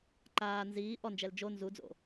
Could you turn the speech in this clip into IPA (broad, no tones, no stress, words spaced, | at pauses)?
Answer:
ǃaː nziː ʔɔnd͡ʒɛl d͡ʒo nzud͡zo̰